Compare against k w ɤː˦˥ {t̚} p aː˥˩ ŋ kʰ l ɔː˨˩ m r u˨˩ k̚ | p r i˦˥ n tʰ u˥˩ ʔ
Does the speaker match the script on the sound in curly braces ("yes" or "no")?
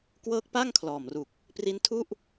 no